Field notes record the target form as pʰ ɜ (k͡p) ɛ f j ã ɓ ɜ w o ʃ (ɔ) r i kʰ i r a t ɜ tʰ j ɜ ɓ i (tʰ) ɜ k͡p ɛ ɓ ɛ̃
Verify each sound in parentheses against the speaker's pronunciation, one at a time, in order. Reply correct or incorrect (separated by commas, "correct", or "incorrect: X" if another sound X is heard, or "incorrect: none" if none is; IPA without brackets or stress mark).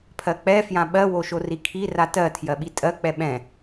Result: correct, incorrect: o, incorrect: tʼ